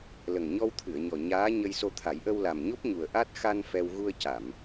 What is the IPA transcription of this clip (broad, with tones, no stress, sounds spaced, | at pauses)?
l ə˨˩ ŋ ɲ ɔ˧ w t̪ʰ ɨ˨˩˨ ə̯ ɲ ɔ˨˩ ɲ aː˧˥ ɲ ə˧ j s o˧ t̪ʰ a˨˩˦ j ʔ ə˧ w l a˨˩ m ɲ o˦˥ p̚ ɲ u˨˩ ə̯ ʔ a˦˥ t̚ x a˧ n f ɛ˧ w ɣ u˧ ə̯ c a˨˩˨ m